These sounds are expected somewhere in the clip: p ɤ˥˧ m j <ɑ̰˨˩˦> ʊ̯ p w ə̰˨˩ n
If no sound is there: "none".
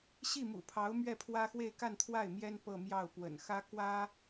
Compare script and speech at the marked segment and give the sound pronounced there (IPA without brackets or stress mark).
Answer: ɑ˥˩